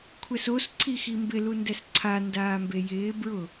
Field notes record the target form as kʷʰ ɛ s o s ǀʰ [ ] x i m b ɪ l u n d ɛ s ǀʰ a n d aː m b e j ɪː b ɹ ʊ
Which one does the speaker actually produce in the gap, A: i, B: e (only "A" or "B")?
A